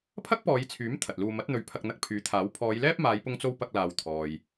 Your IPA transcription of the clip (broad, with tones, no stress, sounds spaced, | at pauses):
pʰ ɐ˥ k̚ p ɔː˨˧ j t͡sʰ yː˨˥ m t̪ʰ ɐ˨ t̚ l uː˧ m ɐ˨˥ t̚ n̪ ɵ˨˧ ɥ pʰ ɐ˧ k̚ n̪ ɐ˧ k̚ pʰ yː˨˥ t̪ʰ aː˨˥ w pʰ ɔː˨˧ j l ɛː˥ p̚ m aː˨˧ j p ʊ˧ ŋ t͡s o˧ w p ɐ˧ k̚ l aː˨ w t̪ʰ ɔː˨ j